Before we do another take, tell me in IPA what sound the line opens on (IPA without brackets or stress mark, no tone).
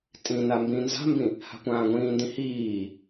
tʼ